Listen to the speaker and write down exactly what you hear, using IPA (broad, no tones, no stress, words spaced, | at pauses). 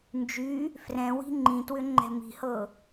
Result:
nd͡ʒy | frɛ̃ wi̤ŋ͡ǃĩtwʏ ŋ͡ǃɛ̤mi̤hɤ